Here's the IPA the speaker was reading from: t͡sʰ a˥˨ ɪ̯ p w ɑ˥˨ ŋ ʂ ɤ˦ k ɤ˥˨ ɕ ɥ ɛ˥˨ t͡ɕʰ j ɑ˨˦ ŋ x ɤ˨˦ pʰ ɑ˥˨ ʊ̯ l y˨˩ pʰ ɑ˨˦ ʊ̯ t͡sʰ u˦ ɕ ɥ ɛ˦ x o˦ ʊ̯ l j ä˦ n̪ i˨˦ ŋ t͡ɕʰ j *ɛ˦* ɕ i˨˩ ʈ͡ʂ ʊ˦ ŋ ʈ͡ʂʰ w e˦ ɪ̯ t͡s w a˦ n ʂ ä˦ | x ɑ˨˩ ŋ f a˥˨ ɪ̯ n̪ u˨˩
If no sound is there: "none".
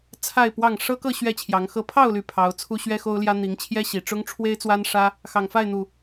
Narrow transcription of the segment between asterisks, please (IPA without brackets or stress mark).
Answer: ɛ˦